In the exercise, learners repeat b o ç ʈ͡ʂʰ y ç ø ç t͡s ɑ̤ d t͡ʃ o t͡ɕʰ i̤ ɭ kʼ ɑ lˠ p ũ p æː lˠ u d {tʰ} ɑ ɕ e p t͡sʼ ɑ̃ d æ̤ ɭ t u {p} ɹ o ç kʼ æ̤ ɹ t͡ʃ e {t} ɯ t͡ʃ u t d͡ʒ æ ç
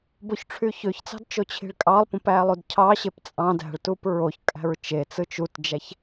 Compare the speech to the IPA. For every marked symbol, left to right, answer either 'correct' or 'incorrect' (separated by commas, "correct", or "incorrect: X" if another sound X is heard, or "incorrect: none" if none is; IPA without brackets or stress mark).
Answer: incorrect: cʰ, correct, incorrect: t͡s